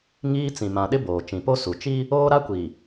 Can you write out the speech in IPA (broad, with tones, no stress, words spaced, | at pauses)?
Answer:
ŋiː˦t͡sĩ˨ mã˨ɗɪ˦ boː˨ t͡ʃĩ˨po˦ su˨ t͡ʃi˦ | oː˦ɾa˦kʷi˨